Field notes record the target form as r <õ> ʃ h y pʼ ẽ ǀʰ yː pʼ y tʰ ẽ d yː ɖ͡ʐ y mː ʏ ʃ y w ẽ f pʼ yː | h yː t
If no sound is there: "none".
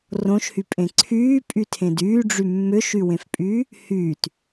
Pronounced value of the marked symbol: õ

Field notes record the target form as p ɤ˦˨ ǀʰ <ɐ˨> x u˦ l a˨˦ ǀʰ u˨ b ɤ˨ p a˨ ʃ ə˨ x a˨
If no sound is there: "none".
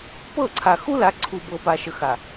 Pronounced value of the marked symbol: a˨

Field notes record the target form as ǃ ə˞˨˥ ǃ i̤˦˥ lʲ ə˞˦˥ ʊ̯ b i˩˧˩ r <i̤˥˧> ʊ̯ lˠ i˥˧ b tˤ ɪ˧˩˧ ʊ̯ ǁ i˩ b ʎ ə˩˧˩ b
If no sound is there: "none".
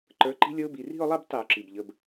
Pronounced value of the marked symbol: i̤˥˧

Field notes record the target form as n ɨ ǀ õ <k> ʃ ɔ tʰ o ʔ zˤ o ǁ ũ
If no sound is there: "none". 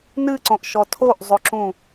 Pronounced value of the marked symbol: ʔ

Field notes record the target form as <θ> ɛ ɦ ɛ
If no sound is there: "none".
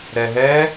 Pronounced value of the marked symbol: ɾ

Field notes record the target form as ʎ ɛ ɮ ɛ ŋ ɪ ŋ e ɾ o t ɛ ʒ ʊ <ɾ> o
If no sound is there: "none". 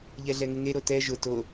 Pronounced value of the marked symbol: t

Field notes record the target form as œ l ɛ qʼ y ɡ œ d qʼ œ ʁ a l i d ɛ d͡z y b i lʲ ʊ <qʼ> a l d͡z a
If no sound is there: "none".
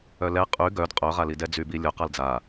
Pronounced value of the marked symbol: q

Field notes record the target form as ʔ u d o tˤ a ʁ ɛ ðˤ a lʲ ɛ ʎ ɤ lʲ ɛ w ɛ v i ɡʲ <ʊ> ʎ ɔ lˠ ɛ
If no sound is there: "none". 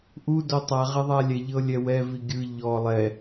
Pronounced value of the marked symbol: ɯ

